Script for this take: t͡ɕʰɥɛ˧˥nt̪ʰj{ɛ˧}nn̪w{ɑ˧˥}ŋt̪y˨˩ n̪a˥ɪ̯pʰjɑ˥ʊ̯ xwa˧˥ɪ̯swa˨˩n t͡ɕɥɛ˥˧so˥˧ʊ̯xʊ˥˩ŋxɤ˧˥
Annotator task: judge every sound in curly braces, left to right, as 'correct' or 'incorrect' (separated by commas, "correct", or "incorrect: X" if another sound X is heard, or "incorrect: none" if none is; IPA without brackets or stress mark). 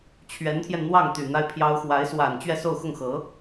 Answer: correct, incorrect: ɑ˥˩